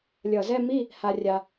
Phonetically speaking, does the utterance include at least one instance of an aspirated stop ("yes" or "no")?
no